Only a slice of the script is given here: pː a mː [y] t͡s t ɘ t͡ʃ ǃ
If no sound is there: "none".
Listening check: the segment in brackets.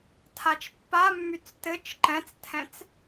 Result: y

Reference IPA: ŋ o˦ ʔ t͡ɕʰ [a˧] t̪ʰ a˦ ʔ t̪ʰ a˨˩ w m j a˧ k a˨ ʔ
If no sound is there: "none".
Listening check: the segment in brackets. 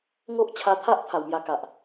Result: a˧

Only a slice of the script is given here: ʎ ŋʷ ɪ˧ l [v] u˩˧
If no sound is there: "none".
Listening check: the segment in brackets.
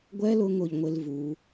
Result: v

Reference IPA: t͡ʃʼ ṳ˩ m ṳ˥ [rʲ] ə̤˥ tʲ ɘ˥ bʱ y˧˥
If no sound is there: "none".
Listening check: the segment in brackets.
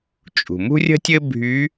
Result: rʲ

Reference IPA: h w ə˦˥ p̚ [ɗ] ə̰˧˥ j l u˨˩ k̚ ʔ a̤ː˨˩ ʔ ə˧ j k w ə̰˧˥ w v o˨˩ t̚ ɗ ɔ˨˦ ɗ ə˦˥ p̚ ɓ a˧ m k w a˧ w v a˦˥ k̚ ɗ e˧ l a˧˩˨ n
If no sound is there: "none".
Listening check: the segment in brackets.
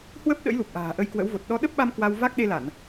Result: ɗ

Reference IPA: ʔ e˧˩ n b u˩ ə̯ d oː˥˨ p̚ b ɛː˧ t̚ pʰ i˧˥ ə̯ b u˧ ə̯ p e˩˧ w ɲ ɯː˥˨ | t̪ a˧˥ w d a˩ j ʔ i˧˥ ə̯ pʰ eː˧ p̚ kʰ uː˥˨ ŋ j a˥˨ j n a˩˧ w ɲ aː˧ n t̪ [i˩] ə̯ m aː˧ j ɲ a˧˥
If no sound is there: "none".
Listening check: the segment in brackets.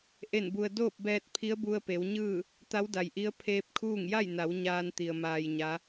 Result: i˩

